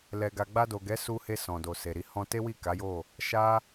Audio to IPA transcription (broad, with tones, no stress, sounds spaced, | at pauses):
l ɛ˨ ɡ a˨ ɡ͡b a˧ d o˨ ɡ ɛ˨˦ s u˧ h e˧ s ɔ̃˨ d o˨ s e˨ ɾ i˨˦ h ɔ̃˧ t e˦ w i˦˨ k a˨˦ j o˦˨ | ʃ a˦